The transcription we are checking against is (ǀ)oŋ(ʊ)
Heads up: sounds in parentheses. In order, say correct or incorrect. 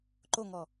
incorrect: ǃ, incorrect: ɔ

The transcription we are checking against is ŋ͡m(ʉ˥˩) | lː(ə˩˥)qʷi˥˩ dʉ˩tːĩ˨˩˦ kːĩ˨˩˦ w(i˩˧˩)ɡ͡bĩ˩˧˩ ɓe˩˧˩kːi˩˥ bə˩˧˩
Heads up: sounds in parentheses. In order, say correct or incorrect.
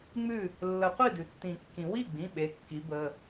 correct, incorrect: ə˨˩˦, incorrect: i˥˩

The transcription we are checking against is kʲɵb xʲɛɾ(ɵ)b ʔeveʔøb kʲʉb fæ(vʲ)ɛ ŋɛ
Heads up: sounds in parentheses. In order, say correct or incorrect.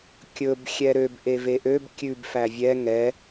incorrect: ø, correct

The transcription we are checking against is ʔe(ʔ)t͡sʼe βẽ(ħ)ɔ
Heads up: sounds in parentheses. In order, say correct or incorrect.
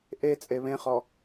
incorrect: none, incorrect: χ

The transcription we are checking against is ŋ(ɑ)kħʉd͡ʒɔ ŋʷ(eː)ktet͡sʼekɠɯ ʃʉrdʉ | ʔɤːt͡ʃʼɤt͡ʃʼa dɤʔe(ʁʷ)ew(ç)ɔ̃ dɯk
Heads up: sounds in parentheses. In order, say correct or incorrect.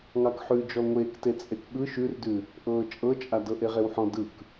correct, correct, incorrect: ʁ, incorrect: ħ

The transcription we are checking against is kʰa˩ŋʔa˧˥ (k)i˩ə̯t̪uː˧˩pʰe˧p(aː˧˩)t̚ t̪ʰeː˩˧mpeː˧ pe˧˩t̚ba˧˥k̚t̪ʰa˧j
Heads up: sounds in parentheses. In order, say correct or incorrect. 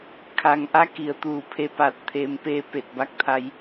correct, correct

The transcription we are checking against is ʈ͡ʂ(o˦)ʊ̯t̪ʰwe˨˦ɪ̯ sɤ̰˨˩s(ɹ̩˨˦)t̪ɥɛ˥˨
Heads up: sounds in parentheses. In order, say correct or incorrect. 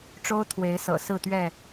correct, incorrect: ɹ̩˥˨

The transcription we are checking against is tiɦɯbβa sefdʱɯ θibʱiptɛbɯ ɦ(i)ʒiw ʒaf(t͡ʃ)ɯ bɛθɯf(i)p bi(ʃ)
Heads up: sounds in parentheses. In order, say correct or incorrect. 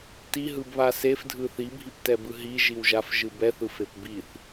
correct, incorrect: ʒ, incorrect: e, incorrect: θ

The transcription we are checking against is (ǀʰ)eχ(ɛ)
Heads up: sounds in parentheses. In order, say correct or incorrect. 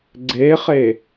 incorrect: ɡ͡ǀ, incorrect: e

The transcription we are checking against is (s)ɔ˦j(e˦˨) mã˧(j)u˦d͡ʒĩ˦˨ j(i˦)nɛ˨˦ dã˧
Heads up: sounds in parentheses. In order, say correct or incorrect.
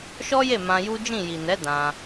incorrect: ʃ, correct, correct, incorrect: i˨

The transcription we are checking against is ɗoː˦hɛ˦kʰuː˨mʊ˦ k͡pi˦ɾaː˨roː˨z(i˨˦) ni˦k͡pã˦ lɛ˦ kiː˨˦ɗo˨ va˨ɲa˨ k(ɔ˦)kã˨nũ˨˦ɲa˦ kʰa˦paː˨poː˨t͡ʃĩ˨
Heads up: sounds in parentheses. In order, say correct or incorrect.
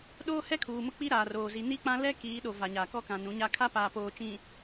correct, correct

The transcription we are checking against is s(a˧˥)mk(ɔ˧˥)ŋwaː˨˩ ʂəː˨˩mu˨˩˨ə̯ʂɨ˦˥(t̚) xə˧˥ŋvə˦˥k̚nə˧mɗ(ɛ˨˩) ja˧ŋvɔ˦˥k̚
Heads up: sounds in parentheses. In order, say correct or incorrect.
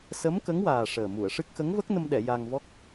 incorrect: ə˧˥, incorrect: ə˧˥, incorrect: k̚, incorrect: ɛ˨˩˨

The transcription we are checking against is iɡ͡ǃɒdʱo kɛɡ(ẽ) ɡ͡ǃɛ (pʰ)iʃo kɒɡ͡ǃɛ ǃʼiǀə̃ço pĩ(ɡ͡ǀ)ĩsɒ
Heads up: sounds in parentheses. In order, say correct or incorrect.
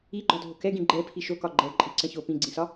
incorrect: ĩ, correct, correct

